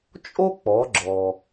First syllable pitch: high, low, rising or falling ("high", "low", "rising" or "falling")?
high